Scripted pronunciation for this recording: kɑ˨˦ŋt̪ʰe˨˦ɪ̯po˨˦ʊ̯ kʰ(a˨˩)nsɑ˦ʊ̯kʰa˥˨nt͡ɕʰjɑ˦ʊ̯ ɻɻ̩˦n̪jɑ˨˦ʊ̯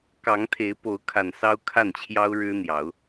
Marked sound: correct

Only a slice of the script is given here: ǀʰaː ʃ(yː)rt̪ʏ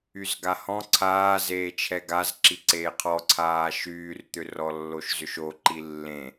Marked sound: correct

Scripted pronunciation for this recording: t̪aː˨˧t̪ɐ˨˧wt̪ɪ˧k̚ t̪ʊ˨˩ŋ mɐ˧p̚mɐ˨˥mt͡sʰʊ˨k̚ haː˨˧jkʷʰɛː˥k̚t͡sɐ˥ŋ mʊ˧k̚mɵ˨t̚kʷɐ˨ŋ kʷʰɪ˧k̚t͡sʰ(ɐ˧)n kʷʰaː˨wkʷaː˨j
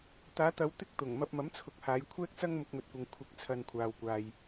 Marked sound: correct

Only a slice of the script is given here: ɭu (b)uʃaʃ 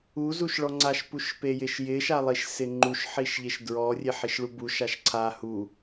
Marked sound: correct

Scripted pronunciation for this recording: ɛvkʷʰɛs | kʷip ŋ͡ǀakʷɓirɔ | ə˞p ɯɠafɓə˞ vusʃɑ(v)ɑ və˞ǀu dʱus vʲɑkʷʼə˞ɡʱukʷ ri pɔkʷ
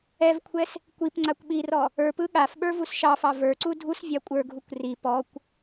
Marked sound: incorrect: f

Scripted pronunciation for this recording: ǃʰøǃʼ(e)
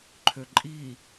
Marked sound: incorrect: i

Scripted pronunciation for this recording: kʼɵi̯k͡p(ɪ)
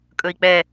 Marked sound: incorrect: ɛ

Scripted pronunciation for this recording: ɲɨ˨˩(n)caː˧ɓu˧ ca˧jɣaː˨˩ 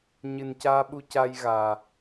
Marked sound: correct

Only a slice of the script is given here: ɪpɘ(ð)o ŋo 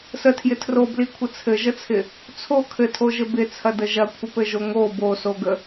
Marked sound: incorrect: ʒ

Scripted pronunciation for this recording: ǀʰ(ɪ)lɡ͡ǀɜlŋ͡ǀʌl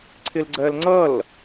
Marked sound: correct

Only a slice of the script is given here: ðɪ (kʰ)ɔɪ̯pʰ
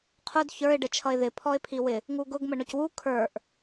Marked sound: incorrect: pʰ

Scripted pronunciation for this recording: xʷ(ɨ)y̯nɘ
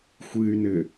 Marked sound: correct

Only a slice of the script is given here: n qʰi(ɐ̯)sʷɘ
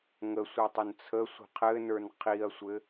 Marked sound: correct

